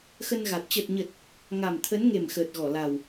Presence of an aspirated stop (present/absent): present